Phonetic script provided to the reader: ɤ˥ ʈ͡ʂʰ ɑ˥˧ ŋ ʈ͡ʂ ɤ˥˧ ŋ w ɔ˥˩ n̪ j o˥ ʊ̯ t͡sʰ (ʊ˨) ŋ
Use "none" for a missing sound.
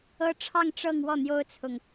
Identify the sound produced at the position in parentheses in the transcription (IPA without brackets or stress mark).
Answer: ʊ˨